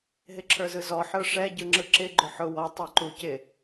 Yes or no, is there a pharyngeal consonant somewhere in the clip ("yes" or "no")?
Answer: yes